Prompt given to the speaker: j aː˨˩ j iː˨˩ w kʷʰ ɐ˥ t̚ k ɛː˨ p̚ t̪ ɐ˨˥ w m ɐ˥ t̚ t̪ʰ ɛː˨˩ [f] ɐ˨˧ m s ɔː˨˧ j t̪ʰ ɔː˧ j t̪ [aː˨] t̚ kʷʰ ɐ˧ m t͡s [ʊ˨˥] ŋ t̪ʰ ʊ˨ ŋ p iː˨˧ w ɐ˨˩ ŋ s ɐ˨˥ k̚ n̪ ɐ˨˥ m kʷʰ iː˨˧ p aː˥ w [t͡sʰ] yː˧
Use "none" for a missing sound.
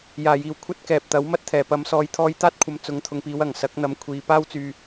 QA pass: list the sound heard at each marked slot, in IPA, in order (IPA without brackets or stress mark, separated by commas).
p, aː˥, ʊ˨˧, t͡s